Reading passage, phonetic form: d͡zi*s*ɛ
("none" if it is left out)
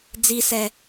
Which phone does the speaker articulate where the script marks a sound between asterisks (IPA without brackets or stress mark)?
s